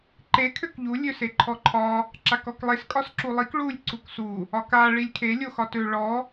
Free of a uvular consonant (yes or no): yes